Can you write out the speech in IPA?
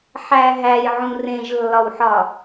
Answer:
ħ æ ɦ æ j ʕ ũ r ẽ ʒ lː ɒ w ħ ɒ

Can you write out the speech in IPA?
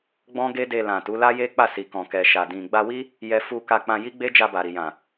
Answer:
ɡ͡b ɔ̃˦ ɡ e˦ d e˧ l ã˨ t u˨˦ l a˦ j e˦ k͡p a˦˨ s i˨ k ɔ̃˨ k ɛ˨ ʃ a˨ d ĩ˨ ɡ͡b a˧ w i˦ | j ɛ˧ f u˧ k a˧ k͡p ã˧ j i˦ ɡ͡b e˦ d͡ʒ a˧ b a˨ ɾ i˨ j ã˨

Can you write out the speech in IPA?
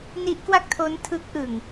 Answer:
n i˦˥ ʔ k w a˥˩ k̚ tʰ o˦˥ n tʰ ɯ˦˥ k̚ ʔ ɯ˨˩ ŋ

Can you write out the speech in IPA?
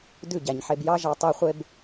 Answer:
d ʉ˦˨ ɟ æ˨ ɲ ħ e˨ b j ɑ˦ ʒ ɑ˧ tˤ e˧ χʷ e˧ b

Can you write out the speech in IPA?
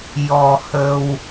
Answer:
j ɔ˧ h ə˧ w

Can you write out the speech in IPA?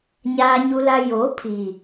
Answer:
ɲ aː˨ ɲ u˨ l a˨ j o˨˦ pʰ i˨

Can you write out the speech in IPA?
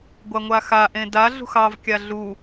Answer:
ɡʷ a ŋʷ a x a ʔ ẽ d a ɮ ṳ x ɑ v kʲ a ɮ u

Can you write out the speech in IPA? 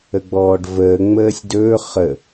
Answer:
ə ɡ͡b ɔː ɖ v əː ŋ͡m əː sʲ d ɵː χ ə

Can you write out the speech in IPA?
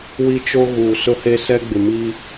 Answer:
w i˦ t͡ʃ o˦ ɣ uː˨ s ʊ˦ h e˦ s ɛ˦ ɡ͡b ɪ˨ m i˦

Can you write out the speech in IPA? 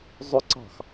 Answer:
zˤ ʊ ǀ ɑ̤ x

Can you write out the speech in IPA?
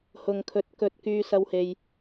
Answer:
h ʊ˨ ŋ kʰ ɵ˨˥ t̚ k ɵ˧ t̚ k yː˧ s ɐ˧ w h e˨ j

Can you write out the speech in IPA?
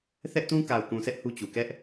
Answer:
θ ɛ˦ ʔ t ũ˦ k a˨ ʊ̯ k ũ˨ sʰ ɛ˦ ʔ h u˦ t͡ɕ u˨ k ɛ˦ ʔ

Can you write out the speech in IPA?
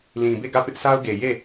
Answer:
l ĩ˨ b e˦˨ ɡ ä˦˨ p ɪ˦ ʔ sʰ a˦ ʊ̯ ɡ e˨ j e˦˨

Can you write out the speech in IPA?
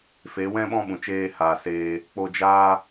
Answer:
f e˨˦ w ɛ̃˦ ɓ ɔ̃˦ ɓ ũ˨ t͡ʃ eː˧ h aː˨ s eː˧ | k͡p o˧ d͡ʒ aː˦

